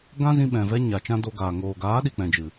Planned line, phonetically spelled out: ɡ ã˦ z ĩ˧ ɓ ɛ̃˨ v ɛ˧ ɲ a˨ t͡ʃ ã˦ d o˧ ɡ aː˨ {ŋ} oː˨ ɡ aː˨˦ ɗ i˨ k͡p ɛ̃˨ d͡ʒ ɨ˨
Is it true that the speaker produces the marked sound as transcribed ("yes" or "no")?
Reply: yes